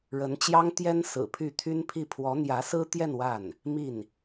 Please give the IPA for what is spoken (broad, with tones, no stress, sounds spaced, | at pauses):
ɻ ə˧˥ n t͡ɕ j ɑ˥ ŋ t̪ j ɛ˥ n s ɹ̩˨˩ pʰ y˥˩ t̪ʰ y˥ n pʰ i˥˩ pʰ w ɔ˧˥ n̪ j ä˧˥ s ɹ̩˥ t̪ j ɛ˥˧ n w a˥˩ n | m i˥˩ n